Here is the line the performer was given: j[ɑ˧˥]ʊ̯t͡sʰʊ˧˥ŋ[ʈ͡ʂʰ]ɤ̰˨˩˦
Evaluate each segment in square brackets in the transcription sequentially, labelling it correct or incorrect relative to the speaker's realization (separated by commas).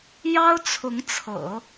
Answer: incorrect, incorrect